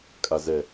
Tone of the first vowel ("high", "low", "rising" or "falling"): low